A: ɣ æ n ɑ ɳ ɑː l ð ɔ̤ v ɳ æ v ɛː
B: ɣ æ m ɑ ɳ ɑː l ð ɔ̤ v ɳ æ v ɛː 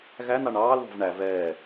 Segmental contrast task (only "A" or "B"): A